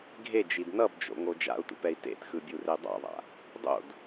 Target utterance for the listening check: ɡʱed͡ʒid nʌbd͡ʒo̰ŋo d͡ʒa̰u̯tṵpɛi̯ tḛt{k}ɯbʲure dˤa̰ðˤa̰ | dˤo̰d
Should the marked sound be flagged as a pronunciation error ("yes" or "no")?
yes